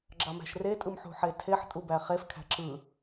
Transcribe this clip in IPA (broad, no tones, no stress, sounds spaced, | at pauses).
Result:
ɡ͡ǁ ɑ m æ̤ ʃ r e tʼ ɯ m ħ ṳ ħ e tʰ e ħ tʼ u b æ χ e f kʰ æ̤ ǁ ɯ